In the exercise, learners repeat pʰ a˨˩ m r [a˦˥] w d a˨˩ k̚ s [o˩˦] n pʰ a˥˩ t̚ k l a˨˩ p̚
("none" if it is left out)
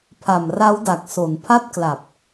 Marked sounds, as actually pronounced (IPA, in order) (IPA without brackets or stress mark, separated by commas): a˦˥, o˩˦